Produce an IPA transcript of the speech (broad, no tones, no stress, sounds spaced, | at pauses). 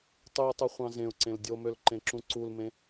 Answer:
tˤ y ʊ̯ tˤ u χʷ ɑ̃ z ẽ ʊ̯ ǀ ẽ l dʲ o m ø l ǃ ẽ ǁ ũ ǀ u l m ẽ